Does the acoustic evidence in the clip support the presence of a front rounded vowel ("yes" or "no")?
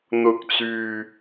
yes